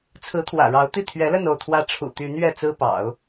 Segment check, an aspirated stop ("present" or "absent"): present